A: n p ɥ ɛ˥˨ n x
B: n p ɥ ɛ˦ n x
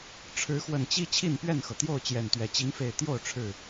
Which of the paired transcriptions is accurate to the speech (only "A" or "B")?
A